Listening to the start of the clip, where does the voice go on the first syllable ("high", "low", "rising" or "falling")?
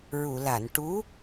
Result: low